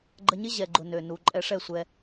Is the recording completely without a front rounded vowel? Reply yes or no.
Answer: no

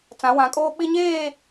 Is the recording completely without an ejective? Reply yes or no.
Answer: no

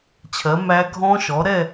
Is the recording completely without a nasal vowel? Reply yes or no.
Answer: no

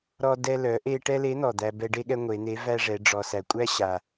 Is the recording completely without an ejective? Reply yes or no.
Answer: no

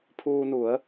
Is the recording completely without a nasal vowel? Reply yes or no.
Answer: yes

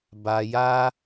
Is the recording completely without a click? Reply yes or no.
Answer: yes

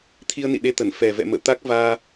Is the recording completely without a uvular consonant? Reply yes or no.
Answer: yes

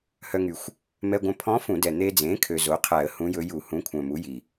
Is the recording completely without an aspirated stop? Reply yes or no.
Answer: no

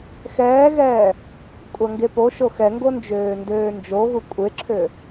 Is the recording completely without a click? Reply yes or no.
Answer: no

